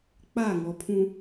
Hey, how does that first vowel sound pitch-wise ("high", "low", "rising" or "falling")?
falling